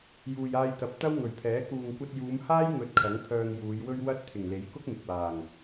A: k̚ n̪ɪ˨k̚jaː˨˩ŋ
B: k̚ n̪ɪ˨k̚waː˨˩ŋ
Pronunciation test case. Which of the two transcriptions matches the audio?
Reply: B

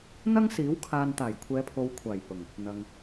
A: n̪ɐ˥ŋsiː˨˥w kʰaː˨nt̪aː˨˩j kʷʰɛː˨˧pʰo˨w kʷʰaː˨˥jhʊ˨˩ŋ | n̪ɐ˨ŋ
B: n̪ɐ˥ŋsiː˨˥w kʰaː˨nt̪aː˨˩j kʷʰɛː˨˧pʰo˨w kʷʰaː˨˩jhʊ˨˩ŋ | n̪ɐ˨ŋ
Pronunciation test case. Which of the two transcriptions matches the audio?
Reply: B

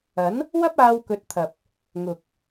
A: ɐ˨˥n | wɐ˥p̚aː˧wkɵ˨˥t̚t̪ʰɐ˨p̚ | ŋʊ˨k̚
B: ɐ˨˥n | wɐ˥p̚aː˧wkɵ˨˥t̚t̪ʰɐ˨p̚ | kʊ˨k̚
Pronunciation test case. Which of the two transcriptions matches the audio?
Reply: A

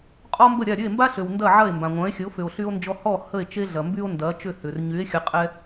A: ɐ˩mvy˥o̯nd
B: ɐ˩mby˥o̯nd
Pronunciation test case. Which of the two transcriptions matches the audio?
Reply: B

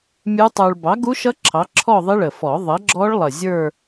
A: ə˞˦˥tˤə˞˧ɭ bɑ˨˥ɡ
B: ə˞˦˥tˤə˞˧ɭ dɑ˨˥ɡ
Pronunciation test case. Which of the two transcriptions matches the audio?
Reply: A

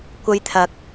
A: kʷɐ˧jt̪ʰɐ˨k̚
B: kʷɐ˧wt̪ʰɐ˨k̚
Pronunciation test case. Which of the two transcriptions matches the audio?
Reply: A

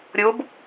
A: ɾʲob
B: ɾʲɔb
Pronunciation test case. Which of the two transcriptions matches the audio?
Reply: A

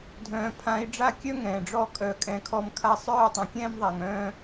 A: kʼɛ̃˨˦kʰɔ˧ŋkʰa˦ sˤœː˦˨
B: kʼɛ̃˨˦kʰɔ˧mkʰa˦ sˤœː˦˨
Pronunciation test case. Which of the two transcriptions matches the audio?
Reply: B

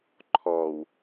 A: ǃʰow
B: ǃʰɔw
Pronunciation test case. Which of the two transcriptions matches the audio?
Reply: B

